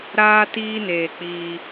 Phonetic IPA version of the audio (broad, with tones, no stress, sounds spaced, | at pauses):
ɾ aː˦ t iː˦ n eː˧ k͡p iː˧